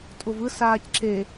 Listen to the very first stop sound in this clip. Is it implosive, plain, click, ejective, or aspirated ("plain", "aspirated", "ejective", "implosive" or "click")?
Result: ejective